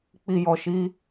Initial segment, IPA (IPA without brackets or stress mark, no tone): k͡p